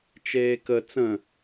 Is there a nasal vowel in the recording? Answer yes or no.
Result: yes